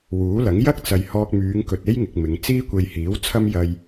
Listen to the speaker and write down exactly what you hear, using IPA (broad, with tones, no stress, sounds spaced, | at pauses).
w uː˨˥ l ɐ˨˥ ŋ j ɐ˥ k̚ t͡s ɐ˨ j h ɔː˧ k̚ m yː˨˧ ŋ k ɵ˨ t̚ e˥ j ŋ ɪ˨ k̚ m ɪ˨˧ ŋ t͡s iː˥ kʷ e˧ j h iː˨˥ w t͡sʰ ɐ˥ m j ɐ˧ j